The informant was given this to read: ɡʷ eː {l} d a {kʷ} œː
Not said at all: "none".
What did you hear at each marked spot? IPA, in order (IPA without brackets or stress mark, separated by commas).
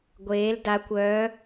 l, kʷ